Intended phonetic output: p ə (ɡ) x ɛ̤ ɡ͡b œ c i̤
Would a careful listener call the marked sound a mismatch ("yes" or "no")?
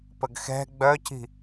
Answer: no